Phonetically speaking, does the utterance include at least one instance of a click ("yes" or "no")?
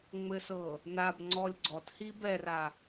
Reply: yes